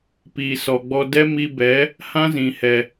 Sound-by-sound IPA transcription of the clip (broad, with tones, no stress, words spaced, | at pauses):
piː˨sɔ˨ɡ͡bɔ˧ dɛ˦mi˧bɛ˨˦ | hã˦zĩ˨hɛ˨